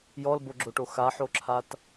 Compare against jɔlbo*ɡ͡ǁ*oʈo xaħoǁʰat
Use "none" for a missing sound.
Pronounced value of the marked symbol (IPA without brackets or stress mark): ɡ͡ǁ